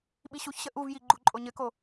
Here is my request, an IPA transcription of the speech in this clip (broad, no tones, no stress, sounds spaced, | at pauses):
ɓ i ɕ u ç ɕ ə ʔ u v j i ɡ͡ǃ u ǃʼ o ɲ ɘ k o